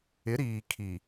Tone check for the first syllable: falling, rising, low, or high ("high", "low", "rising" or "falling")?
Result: rising